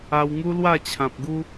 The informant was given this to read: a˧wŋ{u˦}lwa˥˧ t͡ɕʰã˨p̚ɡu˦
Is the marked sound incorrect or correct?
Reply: correct